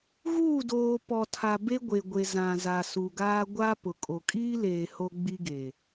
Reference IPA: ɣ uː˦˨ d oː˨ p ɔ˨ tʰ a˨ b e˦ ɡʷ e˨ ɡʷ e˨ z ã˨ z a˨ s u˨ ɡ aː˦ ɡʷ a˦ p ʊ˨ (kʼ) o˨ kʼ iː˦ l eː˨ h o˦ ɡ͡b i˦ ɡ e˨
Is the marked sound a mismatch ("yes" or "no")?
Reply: no